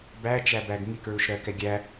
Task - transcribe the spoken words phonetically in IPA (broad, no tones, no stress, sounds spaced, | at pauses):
b æ t͡ʃ æ b æ ɡ ŋ i k ɹ u ʃ ɾ ɜ k ɛ ɡʲ æ